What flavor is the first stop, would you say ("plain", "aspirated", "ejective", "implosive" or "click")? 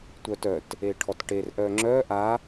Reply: plain